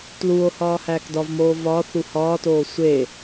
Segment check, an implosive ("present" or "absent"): absent